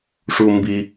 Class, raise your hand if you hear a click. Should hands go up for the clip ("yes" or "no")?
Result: no